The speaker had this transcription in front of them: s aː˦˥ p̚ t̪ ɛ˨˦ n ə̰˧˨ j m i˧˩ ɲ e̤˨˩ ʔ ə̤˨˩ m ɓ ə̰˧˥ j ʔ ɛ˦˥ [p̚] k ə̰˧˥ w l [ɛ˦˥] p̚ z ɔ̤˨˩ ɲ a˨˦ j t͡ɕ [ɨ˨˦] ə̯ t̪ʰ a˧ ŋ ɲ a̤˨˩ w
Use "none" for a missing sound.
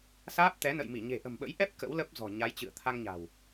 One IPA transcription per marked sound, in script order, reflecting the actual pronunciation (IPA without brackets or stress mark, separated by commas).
p̚, ə˦˥, ɨ̰˧˨